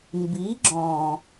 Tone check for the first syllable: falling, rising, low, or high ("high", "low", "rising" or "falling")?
rising